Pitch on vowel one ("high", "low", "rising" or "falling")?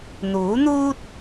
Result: rising